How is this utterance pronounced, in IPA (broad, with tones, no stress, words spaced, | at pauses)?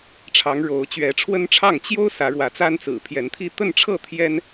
ʈ͡ʂʰɑ˨˦ŋɻo˨˦ʊ̯ t͡ɕɥɛ˨˦ʈ͡ʂʰwə˦nʈ͡ʂʰɑ˥˨ŋ t͡ɕjo˦ʊ̯ sä˨˦ɻwä˨˦t͡sa˦nt͡sɹ̩˨˩ pʰjɛ˨˦nt̪ʰi˥˨ t̪ə˥˨nʈ͡ʂʰɤ˥˨ t̪ʰjɛ˦n